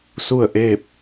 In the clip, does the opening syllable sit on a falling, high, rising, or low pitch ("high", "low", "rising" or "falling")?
falling